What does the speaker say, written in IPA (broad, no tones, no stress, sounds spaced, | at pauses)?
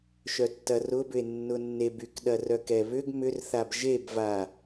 ʃ œ tː ɐ r ʊ b ʏ e̯ nː ʊ nː e b y k ɗ ɐ r œ k ɛ β ʏ ɡ m ʏ r θ a b ʒ e b v a